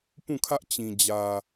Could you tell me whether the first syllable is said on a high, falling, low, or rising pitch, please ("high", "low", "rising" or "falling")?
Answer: falling